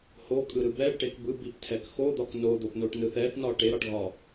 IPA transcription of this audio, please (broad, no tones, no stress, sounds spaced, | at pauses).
h o kʼ ɯ ɾ ɯ b ɛ ɖ ʈ e k b ɯ b i p tʰ ɛ k x o d̪ ɒ k n o d̪ o p n o ʈ n ɯ θ ɛ θ n ɒ ʈ e ɾ ɒ ʈ ɣ ɒ